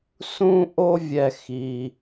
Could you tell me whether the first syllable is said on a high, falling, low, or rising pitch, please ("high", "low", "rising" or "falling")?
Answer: high